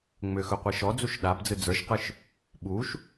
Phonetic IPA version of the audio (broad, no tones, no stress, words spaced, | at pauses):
ŋ͡mʏxɵ qʷiʃɔd͡zuʃ ɗabd͡zɯ d͡zə˞ʃqɯʃ | ɓuʃ